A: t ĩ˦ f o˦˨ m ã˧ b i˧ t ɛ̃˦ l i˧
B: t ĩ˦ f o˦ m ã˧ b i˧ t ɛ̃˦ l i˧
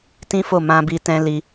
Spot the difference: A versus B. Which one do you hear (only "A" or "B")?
A